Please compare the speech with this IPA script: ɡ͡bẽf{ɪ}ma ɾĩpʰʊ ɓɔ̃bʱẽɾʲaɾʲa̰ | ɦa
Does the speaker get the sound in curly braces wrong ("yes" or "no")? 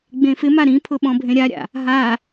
no